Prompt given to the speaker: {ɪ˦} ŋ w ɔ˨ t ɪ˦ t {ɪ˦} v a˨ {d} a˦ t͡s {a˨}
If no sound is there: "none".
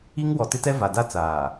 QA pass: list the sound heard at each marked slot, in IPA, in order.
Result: i˦, ɛ˦, d, aː˨

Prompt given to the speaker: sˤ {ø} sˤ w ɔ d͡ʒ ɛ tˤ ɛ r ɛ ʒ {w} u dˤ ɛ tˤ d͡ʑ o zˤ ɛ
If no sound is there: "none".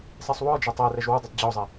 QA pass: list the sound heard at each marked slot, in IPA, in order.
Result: ɛ, w

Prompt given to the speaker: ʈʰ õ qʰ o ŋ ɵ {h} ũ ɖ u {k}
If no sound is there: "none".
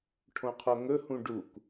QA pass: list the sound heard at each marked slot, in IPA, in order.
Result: h, k

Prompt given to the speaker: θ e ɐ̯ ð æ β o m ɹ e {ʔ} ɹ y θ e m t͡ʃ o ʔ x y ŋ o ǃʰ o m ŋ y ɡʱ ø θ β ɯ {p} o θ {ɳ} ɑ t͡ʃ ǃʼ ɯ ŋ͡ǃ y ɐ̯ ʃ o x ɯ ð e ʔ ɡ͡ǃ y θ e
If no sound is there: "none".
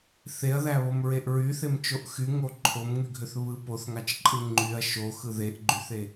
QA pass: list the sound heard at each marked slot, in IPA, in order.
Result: ʔ, p, ŋ

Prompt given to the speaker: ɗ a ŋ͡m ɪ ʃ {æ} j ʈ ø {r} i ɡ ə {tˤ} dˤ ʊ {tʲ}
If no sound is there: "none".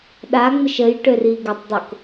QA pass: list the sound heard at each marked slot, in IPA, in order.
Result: ə, r, tˤ, k

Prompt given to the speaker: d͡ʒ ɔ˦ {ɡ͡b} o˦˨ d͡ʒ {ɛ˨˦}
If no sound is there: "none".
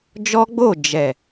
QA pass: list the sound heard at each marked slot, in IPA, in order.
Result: ɡ͡b, ɛ˨

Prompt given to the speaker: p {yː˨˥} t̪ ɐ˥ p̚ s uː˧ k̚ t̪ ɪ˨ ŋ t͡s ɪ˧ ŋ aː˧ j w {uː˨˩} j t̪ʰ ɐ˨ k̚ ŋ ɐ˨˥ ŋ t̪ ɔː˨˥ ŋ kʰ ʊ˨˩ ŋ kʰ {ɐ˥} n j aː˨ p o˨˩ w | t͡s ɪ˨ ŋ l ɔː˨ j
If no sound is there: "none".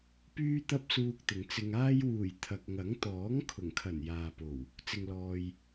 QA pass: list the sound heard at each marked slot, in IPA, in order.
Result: yː˧, uː˨˩, ɐ˨˩

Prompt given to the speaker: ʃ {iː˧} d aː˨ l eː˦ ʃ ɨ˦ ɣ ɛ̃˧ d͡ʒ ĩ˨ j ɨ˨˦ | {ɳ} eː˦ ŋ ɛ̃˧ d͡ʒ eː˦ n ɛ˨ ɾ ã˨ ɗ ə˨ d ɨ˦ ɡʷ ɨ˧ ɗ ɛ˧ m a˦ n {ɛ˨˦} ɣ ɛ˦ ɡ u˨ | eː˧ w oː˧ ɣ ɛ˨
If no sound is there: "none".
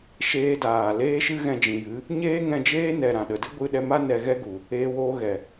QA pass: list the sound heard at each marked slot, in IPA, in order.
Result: eː˧, ɲ, ɛ˧

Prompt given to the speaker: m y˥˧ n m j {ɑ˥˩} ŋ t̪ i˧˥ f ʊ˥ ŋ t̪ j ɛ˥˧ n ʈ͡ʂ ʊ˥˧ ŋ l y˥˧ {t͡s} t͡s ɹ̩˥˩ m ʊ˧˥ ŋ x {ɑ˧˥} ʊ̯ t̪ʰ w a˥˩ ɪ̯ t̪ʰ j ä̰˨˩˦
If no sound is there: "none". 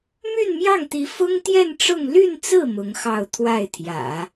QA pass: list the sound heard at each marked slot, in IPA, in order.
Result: ɑ˥˩, n, ɑ˥˧

